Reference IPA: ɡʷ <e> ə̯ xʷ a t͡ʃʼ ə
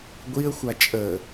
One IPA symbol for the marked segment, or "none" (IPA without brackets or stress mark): i